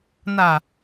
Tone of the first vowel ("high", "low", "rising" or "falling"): low